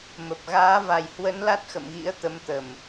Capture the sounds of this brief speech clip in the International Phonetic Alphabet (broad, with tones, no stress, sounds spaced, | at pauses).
m ə˨˩ p̚ ɣ aː˨˦ v a˨˩ j h w ə˨˦ n l a˦˥ t̚ x ə̰˧˨ m ɣ ḭ˧˥ ə̯ t̪ ə˨˦ m t̪ ə˨˩ m